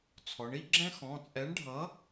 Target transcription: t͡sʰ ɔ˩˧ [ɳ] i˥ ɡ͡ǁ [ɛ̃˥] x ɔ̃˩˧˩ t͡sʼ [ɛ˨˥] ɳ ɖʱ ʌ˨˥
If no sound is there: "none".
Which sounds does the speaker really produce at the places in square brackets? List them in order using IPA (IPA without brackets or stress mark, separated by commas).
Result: ɳ, ɛ̃˥, ɛ˨˥